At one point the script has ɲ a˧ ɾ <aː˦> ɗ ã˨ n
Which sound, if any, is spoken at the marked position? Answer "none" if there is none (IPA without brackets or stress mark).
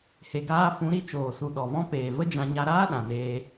aː˦